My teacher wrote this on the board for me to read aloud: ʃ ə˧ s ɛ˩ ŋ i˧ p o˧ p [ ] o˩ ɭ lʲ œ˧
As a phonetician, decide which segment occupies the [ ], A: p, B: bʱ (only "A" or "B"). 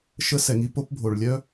B